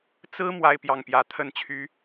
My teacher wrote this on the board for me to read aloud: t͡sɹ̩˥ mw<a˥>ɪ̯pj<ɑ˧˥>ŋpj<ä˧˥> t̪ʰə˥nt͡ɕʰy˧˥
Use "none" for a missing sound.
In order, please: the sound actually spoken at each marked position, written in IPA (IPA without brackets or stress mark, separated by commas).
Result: a˥, ɑ˥˩, ä˧˥